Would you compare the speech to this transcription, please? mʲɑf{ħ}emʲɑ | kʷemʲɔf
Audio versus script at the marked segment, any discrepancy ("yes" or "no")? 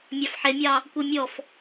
no